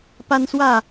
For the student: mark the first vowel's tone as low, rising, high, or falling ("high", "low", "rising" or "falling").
high